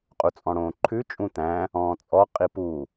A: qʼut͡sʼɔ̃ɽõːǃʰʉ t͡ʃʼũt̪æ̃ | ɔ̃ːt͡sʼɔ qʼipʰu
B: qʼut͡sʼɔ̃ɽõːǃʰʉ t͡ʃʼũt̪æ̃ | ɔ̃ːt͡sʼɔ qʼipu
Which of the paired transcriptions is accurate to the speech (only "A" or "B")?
B